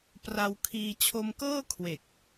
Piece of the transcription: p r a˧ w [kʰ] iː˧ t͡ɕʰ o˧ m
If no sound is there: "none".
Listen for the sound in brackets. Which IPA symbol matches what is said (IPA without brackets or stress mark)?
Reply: kʰ